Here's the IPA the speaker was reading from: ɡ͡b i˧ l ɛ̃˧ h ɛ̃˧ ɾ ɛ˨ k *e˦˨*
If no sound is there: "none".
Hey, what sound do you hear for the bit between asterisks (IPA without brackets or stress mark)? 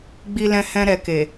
e˨